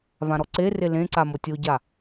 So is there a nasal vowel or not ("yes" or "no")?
yes